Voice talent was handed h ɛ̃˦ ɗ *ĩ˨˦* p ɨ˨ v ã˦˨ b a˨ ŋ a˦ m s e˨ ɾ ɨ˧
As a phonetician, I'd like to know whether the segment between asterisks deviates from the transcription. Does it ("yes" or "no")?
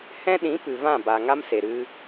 no